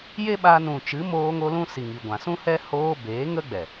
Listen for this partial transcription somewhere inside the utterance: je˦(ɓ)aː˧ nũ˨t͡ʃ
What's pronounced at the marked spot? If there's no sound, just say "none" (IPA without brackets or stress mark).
ɓ